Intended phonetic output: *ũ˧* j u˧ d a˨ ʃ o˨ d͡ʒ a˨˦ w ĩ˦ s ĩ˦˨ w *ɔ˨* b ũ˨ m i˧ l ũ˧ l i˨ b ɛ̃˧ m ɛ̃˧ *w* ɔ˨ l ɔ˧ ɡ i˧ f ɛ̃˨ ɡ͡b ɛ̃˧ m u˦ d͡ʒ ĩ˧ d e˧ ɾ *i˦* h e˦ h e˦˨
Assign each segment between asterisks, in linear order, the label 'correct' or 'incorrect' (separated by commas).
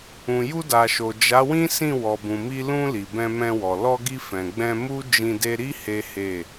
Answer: incorrect, correct, correct, correct